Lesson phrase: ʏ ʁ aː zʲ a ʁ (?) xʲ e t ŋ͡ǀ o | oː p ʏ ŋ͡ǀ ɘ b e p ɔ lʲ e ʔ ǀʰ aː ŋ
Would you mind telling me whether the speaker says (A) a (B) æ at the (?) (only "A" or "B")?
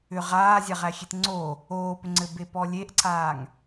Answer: B